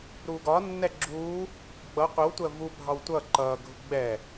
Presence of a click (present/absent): present